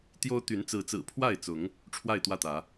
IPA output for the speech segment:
t̪jo˦ʊ̯ t̪y˨˦nt͡sɹ̩˨˦t͡sɹ̩˨˩ pʰwa˥˨ɪ̯t͡sʊ˨˦ŋ | ʈ͡ʂʰwa˥˨ɪ̯t̪wä˥˨t̪ä˨˦

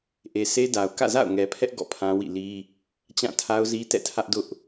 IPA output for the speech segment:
ʔe˨sʰe˦da˨ʊ̯ kä̰˦˨za̰˦˨ʊ̯ŋɛ˨pʰɛ˦ʔ ɡɔ̰˦˨pʰã˦wḭ˦˨ li˦ | t͡ɕã˦˨tʰa˦ʊ̯ zi˦tɛ̰˦˨tʰä˦ʔdʊ˦ʔ

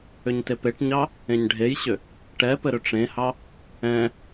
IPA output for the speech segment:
ʏɲtepeʈɲɑ | ẽɲɖʱejɕʏ | ʈɛpɘ ɾʏʈ͡ʂẽhɑ | ɛ̃

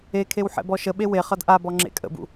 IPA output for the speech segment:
ekʰew ħɛ̰bɔʃəɓe we χʌdʔabɔ ŋ͡ǁḛkʼə̰bṵ

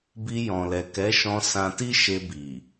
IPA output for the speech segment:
bi˧jɔ̃˨lɛ˨ kɛ˨˦ʃɔ̃˧ sã˧ti˦ʃe˧bi˨

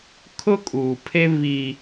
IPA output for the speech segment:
kʰʊ˦kʼuː˨pʰe˦ βi˦

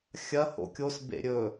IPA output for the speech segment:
xʲɐ ho̰kʲos bḛɾʲɵ

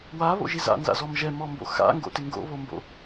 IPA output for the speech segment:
waβo̰ʒiz a̰nza̰zɔm ʒɛmɔmbo̰ xa̰ŋɡo̰tɪ ŋɡo̰βombo̰

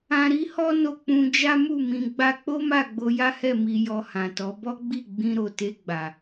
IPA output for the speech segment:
ã˧ɾi˦hɔ˦ no˧k͡pũ˧d͡ʒa˦mu˦˨ mĩ˧ ɡ͡ba˧k͡po˦ma˦˨ ɡ͡bo˧ja˦hɛ˦˨ mi˧jɔ˧hã˨tɔ˨˦ bɔ˦ɡ͡bi˦˨ ɡ͡bĩ˧ɾo˨ te˧ɡ͡ba˨

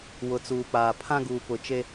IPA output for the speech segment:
wʊ˨t͡suː˨k͡paː˨ pʰã˦ɡuː˨pʊ˨t͡ʃe˦

